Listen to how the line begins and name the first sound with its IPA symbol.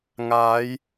ŋ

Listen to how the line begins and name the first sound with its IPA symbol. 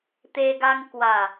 t̪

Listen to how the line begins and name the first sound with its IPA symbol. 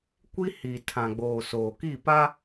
kʷ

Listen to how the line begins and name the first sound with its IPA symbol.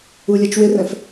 u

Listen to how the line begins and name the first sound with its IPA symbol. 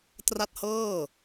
t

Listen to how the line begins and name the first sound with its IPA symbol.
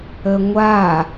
ə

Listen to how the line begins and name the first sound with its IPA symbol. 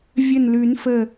vʲ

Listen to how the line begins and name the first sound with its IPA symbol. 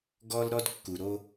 ɡ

